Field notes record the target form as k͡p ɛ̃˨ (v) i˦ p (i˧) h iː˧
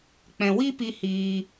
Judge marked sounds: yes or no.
no, yes

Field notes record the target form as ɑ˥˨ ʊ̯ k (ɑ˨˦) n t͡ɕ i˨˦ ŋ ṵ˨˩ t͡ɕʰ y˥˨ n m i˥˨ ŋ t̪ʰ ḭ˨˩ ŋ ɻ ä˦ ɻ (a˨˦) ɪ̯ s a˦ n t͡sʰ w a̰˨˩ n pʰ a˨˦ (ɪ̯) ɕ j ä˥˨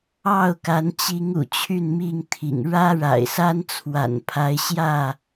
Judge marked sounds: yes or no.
no, no, yes

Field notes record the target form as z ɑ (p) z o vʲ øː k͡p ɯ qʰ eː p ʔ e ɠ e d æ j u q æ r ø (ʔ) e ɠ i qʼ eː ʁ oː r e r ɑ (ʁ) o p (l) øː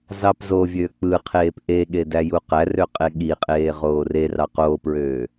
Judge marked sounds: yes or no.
yes, no, no, no

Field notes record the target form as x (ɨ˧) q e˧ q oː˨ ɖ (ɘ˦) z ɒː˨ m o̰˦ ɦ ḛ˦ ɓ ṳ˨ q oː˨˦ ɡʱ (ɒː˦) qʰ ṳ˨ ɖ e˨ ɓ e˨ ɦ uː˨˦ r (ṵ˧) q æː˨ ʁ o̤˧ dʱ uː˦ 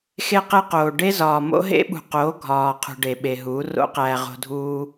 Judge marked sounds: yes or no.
no, no, no, no

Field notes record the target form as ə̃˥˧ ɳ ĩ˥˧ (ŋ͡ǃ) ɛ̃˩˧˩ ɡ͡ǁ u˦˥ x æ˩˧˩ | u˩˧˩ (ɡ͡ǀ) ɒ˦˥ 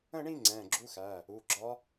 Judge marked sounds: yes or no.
no, no

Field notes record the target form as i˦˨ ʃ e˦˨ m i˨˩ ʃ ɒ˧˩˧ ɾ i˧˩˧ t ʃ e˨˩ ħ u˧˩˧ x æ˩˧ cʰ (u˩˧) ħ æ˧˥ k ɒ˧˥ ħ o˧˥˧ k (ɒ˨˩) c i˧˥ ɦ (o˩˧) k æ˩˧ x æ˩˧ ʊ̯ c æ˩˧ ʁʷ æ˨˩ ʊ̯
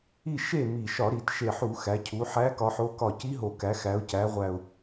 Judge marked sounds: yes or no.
yes, no, no

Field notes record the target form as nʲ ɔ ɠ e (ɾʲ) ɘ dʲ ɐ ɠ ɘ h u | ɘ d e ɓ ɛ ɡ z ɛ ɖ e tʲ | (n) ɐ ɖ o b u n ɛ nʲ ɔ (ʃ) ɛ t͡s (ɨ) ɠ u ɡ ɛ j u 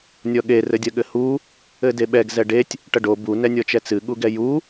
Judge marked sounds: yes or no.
no, no, no, yes

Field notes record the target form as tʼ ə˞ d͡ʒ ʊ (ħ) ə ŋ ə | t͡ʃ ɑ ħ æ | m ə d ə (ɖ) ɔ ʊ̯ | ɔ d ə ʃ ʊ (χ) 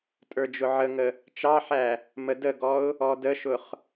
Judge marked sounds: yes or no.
no, no, yes

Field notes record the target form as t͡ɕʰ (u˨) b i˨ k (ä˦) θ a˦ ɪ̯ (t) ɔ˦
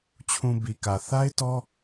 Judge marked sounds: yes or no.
no, no, yes

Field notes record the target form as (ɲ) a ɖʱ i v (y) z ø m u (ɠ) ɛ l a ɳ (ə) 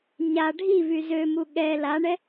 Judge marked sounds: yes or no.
yes, yes, yes, no

